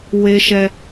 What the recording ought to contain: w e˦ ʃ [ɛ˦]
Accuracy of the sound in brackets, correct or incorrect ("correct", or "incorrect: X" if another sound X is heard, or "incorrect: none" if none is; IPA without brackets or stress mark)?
correct